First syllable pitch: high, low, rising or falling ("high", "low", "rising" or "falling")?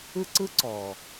high